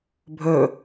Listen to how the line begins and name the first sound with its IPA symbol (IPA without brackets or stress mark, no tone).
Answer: bʱ